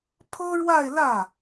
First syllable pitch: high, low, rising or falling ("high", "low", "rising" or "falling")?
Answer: high